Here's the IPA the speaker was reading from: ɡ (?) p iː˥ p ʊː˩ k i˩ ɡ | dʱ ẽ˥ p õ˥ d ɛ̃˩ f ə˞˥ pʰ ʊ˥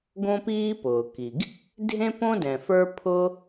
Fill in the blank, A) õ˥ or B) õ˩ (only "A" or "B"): A